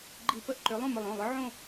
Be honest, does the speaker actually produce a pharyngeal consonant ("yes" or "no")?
yes